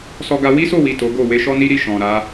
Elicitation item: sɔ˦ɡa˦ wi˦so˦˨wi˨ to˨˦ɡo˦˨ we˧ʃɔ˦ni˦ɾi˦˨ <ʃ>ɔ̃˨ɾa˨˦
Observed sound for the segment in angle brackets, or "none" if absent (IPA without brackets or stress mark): ʃ